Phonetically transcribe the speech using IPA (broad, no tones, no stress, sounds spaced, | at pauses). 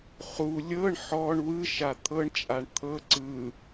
χ u lʲ ɤ ɳ ħ ɔ ɳ w ɯ ʃ a t̪ʰ ɤ ɳ t͡ʃʼ a ɳ t̪ʰ ɤ ǀ ɯ